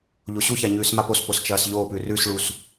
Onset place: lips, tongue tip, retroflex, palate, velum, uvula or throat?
palate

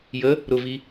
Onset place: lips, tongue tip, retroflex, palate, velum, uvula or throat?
palate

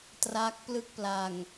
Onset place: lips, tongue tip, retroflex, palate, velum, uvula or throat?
tongue tip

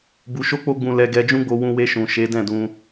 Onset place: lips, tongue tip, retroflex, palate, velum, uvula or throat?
lips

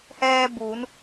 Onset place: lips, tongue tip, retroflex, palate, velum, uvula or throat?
throat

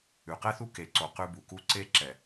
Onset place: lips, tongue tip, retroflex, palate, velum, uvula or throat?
uvula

